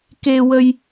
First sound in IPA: k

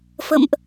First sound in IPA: f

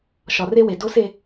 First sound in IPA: ʃ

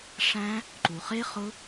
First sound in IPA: ʂ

